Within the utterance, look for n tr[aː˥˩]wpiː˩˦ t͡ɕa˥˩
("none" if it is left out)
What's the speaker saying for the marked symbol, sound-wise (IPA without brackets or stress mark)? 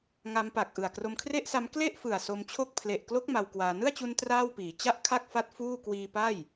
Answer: aː˥˩